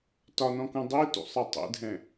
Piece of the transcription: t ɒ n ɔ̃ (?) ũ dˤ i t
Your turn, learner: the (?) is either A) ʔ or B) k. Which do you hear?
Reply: B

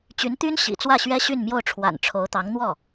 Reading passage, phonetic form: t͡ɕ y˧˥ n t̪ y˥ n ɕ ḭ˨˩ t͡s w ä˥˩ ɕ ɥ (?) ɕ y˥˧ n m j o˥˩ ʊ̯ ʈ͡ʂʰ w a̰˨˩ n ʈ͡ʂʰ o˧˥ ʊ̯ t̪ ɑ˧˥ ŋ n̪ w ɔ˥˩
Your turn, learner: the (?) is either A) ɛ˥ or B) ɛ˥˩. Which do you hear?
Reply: A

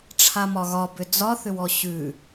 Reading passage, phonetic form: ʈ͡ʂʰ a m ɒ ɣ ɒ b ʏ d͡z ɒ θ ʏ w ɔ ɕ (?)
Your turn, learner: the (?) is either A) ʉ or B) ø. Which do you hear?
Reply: A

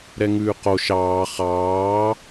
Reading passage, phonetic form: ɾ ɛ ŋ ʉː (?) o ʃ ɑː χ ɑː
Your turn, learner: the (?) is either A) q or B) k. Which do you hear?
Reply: A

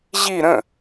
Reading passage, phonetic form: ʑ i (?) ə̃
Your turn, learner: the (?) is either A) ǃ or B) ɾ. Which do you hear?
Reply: B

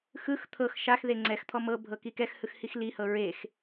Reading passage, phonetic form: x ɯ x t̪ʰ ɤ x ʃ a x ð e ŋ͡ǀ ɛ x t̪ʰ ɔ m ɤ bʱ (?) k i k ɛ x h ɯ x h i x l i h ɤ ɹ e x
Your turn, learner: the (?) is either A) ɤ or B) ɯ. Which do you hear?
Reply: A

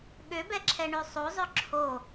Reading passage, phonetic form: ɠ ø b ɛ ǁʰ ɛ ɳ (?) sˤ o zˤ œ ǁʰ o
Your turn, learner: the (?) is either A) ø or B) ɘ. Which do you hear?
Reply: A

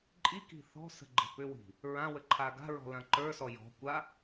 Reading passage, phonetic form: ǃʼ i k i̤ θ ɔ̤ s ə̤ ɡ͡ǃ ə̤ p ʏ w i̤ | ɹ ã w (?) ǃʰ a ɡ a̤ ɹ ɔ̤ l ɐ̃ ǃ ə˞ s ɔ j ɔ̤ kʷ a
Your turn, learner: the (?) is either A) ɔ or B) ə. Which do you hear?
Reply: B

